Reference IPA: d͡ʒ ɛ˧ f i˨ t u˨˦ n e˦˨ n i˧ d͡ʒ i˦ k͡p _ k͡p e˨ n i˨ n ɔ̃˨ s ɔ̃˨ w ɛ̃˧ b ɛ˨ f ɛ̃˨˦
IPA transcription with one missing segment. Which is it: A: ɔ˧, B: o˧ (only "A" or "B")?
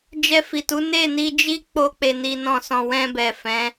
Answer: B